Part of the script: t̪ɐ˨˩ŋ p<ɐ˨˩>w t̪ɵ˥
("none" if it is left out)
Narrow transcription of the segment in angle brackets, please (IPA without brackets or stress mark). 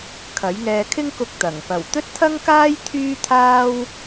ɐ˨˩